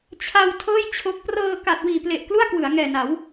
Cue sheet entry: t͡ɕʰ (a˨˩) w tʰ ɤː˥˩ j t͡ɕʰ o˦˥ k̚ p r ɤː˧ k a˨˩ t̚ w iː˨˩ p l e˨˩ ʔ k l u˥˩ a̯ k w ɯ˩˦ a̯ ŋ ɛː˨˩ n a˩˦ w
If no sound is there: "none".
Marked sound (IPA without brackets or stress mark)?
a˧